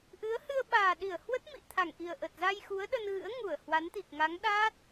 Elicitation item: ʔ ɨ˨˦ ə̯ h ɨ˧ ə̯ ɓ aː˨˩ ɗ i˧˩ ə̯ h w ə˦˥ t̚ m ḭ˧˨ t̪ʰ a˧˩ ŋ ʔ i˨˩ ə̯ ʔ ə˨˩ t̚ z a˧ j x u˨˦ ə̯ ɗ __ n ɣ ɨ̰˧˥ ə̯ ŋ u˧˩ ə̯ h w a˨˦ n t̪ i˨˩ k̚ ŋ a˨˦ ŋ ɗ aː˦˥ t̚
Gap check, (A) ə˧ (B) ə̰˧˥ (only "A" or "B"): A